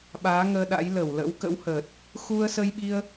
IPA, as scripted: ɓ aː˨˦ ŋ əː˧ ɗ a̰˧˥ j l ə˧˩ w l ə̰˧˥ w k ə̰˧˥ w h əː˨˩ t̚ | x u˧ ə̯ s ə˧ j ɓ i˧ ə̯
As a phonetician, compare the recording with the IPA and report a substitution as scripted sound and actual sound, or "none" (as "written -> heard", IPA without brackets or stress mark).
none